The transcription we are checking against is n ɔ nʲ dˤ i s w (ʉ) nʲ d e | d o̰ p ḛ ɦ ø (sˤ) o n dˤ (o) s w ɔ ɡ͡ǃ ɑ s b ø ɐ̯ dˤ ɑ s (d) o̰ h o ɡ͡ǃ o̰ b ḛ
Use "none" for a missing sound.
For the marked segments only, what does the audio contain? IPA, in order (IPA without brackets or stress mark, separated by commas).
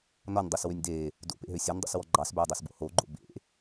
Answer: ø, sʲ, o̰, b